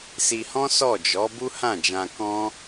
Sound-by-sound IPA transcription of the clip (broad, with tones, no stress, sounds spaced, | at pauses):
s i˧ h ɔ̃˦ s ɔ˦˨ d͡ʒ ɔ˨˦ b u˦ h ã˦˨ d͡ʒ ã˧ k ɔ̃˦